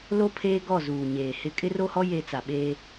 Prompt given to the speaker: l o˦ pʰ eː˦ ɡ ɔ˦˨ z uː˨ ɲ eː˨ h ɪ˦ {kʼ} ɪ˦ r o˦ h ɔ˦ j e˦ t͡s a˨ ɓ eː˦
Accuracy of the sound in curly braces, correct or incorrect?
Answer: correct